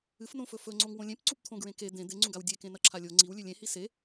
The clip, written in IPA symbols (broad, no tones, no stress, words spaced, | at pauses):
ɨfnõfɵ fɵŋ͡ǀoŋ wõlʲẽp ǀupt̪ʰõɡɹẽke d̪ẽ d̪eŋ͡ǀũɡaw dʲekẽ nɐǁʰalʲo ŋ͡ǀiwlʲʉ lʲẽhi se